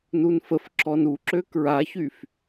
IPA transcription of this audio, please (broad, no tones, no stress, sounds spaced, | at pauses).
n u n f ə f ǁ ɔ n u ǁ ø k ɹ a ç y f